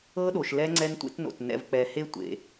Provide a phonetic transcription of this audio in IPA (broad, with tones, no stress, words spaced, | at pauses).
ɤ˥ɗo˧ʃ lɛ˥ ŋ͡ǀɛ˥ntʷḛ˥tno̰˧t nɛ̰˧vk͡pɛ˧ he˥tʷḛ˧